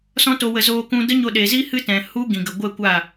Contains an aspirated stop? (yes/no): no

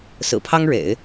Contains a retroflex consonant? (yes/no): yes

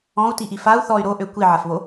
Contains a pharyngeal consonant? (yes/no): yes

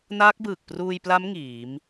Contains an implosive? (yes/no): no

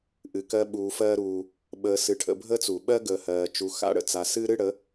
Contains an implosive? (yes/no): yes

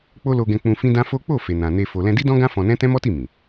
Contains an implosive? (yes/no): no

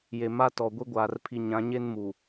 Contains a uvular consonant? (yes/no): no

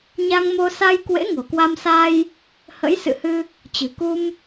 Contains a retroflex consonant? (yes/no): no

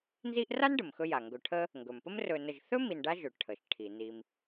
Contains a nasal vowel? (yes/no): no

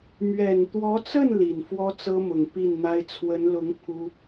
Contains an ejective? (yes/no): no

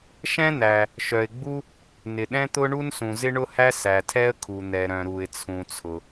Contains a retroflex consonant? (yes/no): yes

